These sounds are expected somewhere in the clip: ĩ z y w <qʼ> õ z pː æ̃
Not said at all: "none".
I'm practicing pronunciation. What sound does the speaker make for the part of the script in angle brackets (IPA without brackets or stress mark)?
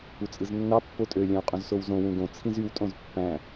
tʼ